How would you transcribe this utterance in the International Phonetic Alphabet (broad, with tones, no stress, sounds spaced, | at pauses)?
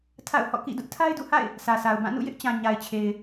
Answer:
tʰ a̰˦˨ ʊ̯ h ɔ̰˦˨ k ḭ˦˨ d ʊ˦ ʔ tʰ a˦ ɪ̯ d ṵ˦˨ h a̰˦˨ ɪ̯ | sʰ ä˨ sʰ a˨ ʊ̯ b ã˦˨ n ṵ˦˨ j ɪ˦ ʔ t͡ɕ ã˨ ɲ a˨ ɪ̯ t͡ɕʰ e˨ ɪ̯